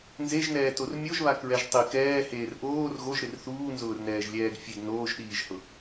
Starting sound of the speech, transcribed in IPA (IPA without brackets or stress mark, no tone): n